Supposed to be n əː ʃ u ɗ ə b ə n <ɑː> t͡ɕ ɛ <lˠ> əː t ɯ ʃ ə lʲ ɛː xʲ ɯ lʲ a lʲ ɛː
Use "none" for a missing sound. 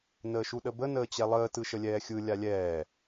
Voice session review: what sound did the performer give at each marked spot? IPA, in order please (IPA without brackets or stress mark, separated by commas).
əː, lˠ